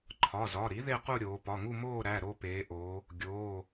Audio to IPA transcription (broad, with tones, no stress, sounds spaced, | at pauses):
ǃʰ ɒ˩˧˩ z ɒ˩˧˩ ɾ i˩˥ ð e˥˧ q u˥˧ ɾʲ oː˩˧ p ɒ˩˧˩ ŋ u˥˧ m oː˥˧ ɾ æ˩˧˩ ɾ o˥˧ p eː˩˧ ʔ oː˩˧ | ɡʲ oː˩˧˩